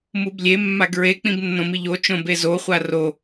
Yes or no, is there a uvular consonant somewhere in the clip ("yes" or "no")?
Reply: yes